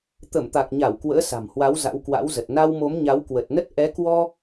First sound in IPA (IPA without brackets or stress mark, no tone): t̪